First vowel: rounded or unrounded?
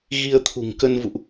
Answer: unrounded